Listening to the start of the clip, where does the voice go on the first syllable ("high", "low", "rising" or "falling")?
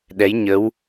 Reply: rising